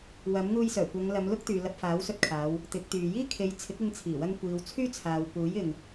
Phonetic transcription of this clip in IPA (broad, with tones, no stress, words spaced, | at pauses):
wɐ˨˥mŋuː˧jsœː˨˩kʷɐ˨˧ŋ lɐ˨˧mlʊ˥k̚t̪yː˨ lɐ˧p̚faː˨˥wsɵ˧t̚kʰaː˨˧w | t̪ɪ˨˥k̚t̪yː˨ jiː˥kʰe˨˧j t͡sʰɪ˨˥k̚ɪ˧ŋt͡sʰiː˨˩wɐ˧ŋ kʷiː˨wt͡sʰyː˥t͡sʰaː˨w puː˨˥jɪ˨ŋ